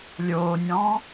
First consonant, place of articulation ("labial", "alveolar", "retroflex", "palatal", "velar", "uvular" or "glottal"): alveolar